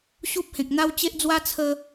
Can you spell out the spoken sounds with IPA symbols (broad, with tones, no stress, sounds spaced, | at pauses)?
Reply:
ɕ u˦ p̚ h ẽ˨ k̚ n̪ a˦ w t͡ɕ e˦ ʔ d͡z w a˦ t͡sʰ ə˧